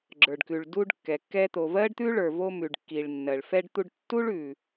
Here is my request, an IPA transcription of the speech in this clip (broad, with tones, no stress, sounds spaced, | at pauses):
ɡ͡ǁ ə˞˩ ɖ k ʉ˩ ɭ d u˧ ɖ kː ɛ˩ kː ɛ˧ t̪ o˩ v ɜ˥ ɖ t̪ ʉ˥ ɭ ə˞˩ v o˧ m ʉ˩ ɖ kː i˩ ɭ nː ɜ˩ ɭ f ɛ˧ ɖ t̪ u˧ ɖ tː u˥ ɭ ʉ˩